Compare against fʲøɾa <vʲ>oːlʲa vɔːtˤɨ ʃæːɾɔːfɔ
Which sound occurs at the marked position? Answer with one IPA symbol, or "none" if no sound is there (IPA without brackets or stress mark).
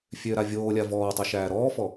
vʲ